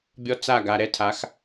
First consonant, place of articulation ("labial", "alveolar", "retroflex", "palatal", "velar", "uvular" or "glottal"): labial